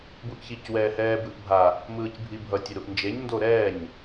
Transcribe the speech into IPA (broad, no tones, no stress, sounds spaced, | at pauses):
b u ʔ ç i c w ɛː h ɛː b ɯ ʔ bʱ a | m ɯː c bʱ i bʱ ʌ tʲ ɛ ɾ u ʔ n d͡ʒ e ɲ n d o ɾ ɛː ɲ